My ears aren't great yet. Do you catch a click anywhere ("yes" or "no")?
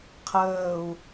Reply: no